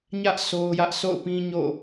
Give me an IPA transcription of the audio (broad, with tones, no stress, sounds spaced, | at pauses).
ɲ ä˦ ʔ sʰ o˦ ʊ̯ j ä˦ ʔ s o̰˦˨ ʊ̯ p ĩ˦ ɲ o̰˦˨